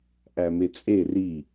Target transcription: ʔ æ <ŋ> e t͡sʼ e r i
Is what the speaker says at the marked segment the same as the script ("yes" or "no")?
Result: no